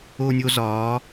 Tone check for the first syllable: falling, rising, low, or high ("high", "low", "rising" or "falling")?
high